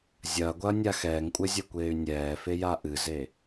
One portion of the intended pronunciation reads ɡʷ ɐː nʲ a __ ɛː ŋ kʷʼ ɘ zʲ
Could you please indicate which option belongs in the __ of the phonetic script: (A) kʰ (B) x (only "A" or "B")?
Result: B